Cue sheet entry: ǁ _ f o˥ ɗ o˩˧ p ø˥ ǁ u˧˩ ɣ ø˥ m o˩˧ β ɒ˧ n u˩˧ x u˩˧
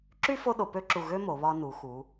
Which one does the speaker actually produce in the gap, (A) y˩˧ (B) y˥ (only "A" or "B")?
B